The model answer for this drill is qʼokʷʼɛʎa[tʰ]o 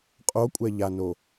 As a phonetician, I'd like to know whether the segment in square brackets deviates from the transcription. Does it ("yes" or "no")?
yes